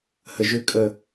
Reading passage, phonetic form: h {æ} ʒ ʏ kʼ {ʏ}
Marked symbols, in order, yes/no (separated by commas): no, no